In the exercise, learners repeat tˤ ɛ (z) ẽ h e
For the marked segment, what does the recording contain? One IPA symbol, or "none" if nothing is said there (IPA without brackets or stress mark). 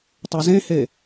z